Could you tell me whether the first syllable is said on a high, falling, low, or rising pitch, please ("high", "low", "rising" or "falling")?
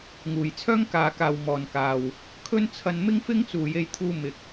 low